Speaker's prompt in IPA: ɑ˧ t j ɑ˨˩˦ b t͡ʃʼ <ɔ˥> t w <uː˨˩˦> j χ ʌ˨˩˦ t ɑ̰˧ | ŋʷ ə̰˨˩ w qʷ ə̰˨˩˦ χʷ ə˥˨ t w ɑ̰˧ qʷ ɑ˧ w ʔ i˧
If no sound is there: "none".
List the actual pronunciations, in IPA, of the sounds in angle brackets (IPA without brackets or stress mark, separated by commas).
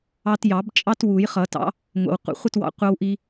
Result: ɑ˥, u˨˩˦